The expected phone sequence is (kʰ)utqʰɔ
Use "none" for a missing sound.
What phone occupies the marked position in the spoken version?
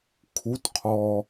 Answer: kʰ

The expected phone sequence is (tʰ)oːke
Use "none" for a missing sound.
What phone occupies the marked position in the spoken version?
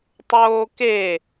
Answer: tˤ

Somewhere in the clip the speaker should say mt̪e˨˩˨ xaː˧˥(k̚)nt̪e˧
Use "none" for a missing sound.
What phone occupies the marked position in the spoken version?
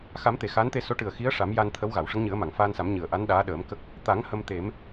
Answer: none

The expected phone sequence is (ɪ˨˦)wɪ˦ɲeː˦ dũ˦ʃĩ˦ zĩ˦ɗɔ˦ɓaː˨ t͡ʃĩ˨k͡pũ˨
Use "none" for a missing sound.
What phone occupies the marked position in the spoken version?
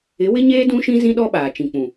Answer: ɪ˨˦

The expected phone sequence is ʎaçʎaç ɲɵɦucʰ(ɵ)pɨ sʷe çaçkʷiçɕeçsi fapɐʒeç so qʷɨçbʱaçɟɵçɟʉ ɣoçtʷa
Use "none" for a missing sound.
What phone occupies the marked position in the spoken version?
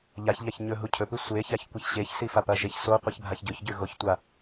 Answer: ɵ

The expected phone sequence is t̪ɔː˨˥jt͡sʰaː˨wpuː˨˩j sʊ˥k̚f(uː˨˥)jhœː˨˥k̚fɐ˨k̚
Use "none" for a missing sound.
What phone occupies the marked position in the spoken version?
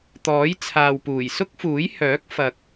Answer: uː˨˥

